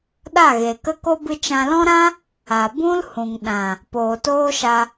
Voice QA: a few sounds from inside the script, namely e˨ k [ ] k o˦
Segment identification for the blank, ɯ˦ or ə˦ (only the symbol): ə˦